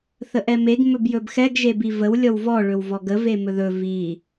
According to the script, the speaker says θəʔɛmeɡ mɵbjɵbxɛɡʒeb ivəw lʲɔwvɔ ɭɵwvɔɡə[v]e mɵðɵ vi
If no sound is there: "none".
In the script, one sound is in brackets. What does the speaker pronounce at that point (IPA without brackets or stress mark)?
v